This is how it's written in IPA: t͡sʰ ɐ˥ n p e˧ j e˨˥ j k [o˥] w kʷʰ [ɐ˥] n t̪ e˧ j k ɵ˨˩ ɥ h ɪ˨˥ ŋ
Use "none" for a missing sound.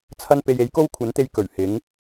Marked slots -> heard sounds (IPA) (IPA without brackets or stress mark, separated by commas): o˥, ɐ˨˥